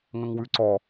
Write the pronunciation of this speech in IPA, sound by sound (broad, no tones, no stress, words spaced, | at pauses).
ŋə̃ŋwʉǀɔ